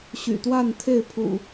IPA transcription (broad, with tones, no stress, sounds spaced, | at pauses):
ɕ y̰˨˩ t̪ w a˥˨ n t̪ʰ e˥˨ ɪ̯ pʰ ṵ˨˩